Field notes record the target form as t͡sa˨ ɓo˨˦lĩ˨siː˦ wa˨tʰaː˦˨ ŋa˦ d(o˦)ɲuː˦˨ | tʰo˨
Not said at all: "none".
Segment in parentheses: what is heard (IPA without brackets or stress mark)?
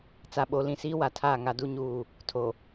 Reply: u˦